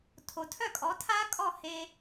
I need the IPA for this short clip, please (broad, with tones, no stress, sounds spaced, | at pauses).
tʰ o˩ tʰ œ˥˩ kʼ ɔ˩˥ tʰ a˥ kʼ ɔ˥˩ h e˧